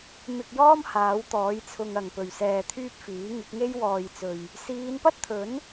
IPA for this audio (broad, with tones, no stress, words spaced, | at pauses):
mɪ˧k̚jɔː˥m haː˨˥wt̪ɔː˨˥jt͡sʰʊ˧ŋ ɐ˨ŋpɵ˨ɥ sɛː˧t̪ʰyː˥p̚ fiː˨˥ ŋɪ˨˥k̚ŋe˥jwɔː˧jt͡sɵ˧ɥ | siː˨˧npɐ˥t̚t̪ʰɵ˨˥n